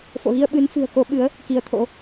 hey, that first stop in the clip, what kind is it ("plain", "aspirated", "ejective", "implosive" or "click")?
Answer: implosive